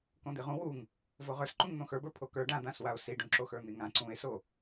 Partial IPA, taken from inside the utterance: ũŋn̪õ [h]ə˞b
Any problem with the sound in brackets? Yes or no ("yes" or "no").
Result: yes